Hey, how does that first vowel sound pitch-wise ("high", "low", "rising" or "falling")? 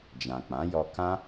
low